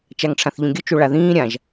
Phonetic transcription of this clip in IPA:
t͡ʃaŋʈ͡ʂʰãθʎõɡʲʊ t͡ʃoɭaðĩː ɾʲãʒ

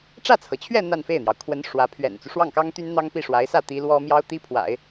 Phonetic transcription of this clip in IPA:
ʈ͡ʂä˥˩t͡sʰɤ˩t͡ɕʰɥɛ˥˧ n̪a˥˧nfe˥˩ɪ̯n̪jɑ˩ʊ̯ kʰwə˧˥n ʂwä˧˥ pʰɥɛ̰˨˩nt͡su˦ ʂwɑ˥˩ŋkɑ˥ŋt̪y˥n n̪ɑ˥ŋ pi˥˩ʂwa˧˥ɪ̯ sä˥˩ t̪i˧˥lwɔ˥ mjɑ˥ʊ̯t̪i˥pʰwa̰˨˩˦ɪ̯

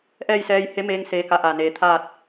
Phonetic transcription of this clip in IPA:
ʔɛː˥˨jsɛː˧j he˧˥meː˧ŋ seː˧ka˧ʔaː˧˩ neː˩˧t̪ʰaː˥˨t̚

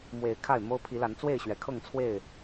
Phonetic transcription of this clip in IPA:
mwe˨˦ɪ̯ kʰa˥˨ɪ̯mo˦ʊ̯ pʰi˨˦la˨˦n t͡swe˥˨ɪ̯ɕɥɛ˨˦ kʰɤ˥˨ŋt͡sʰwe˥˨ɪ̯

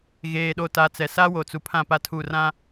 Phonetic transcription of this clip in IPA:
ɣeː˨ɗo˨ta˨t͡sɛ˨ sa˦wo˨t͡su˨ pʰã˦˨pa˦tʰu˦˨ rã˦

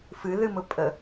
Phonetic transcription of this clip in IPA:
fɨ ðɨmʊpʼə

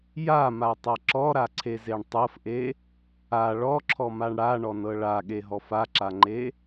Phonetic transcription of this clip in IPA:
jamatˤa ǁɔɾaǀʰezeɳ tˤɤfʔe | a ɭɔǁʰɔmaɳ ɽaɳɔnɤ ɭaɠeɦɔf aǁaŋ͡ǃe

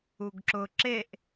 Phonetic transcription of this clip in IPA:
uɡǁʊ ǁeʔ

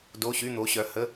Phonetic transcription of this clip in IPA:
do˧˥˧ɕy˧˥˧ n̪o˨˦ɕœ˨˦hə˧˥˧

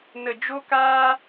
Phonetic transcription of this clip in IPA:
nə˨d͡ʒo˧kaː˧

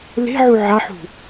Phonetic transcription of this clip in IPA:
le̤ʕu ʕaħṳ

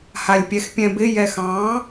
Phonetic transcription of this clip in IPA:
halʲpʲɛxpʲɛ̃bɪ jɛxɑ̃

